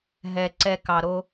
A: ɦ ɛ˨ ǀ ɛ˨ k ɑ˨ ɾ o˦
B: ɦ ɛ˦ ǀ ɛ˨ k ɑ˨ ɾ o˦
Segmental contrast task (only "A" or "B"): A